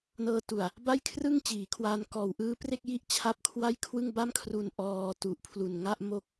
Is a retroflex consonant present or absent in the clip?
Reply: absent